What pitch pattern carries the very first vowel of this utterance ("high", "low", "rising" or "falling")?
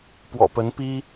low